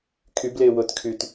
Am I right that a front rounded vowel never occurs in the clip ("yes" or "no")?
no